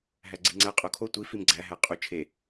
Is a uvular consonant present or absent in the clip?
present